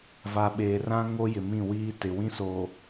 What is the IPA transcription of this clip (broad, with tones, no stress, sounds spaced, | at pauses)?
v a˨ ɓ eː˨ r ã˦ ŋ o˦ j ɪ˨ m ĩ˦˨ w iː˦ t ɪ˨ w ĩ˦ s oː˨